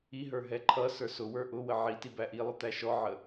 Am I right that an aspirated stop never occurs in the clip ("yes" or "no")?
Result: no